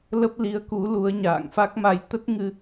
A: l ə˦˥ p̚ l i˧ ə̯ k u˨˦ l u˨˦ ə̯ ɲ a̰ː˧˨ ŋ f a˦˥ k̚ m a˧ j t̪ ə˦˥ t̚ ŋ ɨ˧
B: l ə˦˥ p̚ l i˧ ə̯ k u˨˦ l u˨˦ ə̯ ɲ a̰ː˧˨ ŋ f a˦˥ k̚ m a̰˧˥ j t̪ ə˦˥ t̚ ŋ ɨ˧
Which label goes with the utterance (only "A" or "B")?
A